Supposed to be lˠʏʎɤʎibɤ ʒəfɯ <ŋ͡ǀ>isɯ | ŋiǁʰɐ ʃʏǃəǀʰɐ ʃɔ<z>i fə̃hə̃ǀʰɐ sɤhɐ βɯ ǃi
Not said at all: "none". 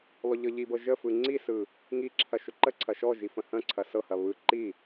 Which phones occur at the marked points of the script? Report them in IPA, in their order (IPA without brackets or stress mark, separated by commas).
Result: ŋ͡ǀ, ʒ